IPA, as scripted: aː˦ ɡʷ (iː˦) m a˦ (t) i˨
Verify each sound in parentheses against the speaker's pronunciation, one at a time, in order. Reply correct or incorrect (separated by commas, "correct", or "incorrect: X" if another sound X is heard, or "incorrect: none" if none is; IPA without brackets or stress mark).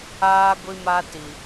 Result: incorrect: i˦, correct